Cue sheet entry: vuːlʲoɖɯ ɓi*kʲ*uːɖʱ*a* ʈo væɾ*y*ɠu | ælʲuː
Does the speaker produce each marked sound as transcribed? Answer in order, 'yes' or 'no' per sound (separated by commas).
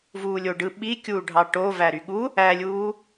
yes, no, yes